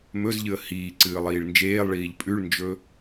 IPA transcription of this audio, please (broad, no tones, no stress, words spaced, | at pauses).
mɵzʎɨə̯ hiː ǀɨːlˠiːɭnd͡ʒeːlˠɭiːʎ pʼʉɭnd͡ʒɵ